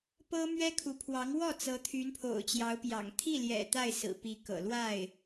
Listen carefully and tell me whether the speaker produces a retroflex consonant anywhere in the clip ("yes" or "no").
no